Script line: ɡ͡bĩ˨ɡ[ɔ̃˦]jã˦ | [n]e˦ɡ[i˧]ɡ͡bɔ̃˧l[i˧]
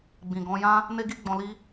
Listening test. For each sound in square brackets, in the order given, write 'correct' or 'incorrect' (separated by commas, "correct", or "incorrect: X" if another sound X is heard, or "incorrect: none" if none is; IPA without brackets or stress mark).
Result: incorrect: ɔ̃˧, correct, incorrect: i˦, incorrect: i˦